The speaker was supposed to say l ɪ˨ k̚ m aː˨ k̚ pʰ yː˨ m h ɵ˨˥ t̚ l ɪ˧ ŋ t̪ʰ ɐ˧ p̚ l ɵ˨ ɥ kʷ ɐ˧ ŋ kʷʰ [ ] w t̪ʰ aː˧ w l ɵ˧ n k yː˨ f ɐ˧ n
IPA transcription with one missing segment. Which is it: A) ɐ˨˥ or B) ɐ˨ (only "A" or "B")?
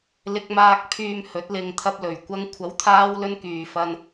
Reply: A